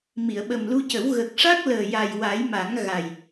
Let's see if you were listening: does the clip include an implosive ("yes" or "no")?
yes